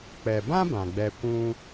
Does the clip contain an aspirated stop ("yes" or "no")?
no